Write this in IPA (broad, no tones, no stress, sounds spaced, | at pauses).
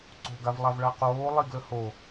ǀ o̤ ɡ a v lˠ a v ɭ a q oː lˠ i ɡ l ə h o